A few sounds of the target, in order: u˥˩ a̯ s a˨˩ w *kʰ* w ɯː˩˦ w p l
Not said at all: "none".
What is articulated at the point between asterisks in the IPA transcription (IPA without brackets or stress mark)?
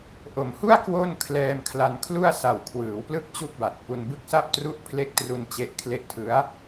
kʰ